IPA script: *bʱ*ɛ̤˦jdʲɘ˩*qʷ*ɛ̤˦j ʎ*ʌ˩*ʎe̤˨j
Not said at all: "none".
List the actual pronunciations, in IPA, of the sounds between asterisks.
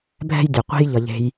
bʱ, qʷ, ʌ˩

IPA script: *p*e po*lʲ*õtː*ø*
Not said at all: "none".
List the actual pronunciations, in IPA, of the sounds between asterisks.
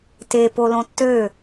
t, l, ø

